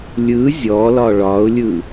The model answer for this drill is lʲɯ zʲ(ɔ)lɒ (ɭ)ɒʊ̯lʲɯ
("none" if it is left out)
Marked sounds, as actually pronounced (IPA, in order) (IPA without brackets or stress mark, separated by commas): ɔ, ɭ